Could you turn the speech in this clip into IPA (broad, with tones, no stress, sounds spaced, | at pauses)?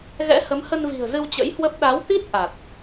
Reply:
ɣ ɛ̰˧˥ h ə˨˦ m h ə˧ n v i̤˨˩ ə̯ z ɨ˧ w t͡ɕ ə̰˧˥ j h w ə˦˥ p̚ ɗ a˨˦ w t̪ i˦˥ t̚ ʔ a˨˩ t̚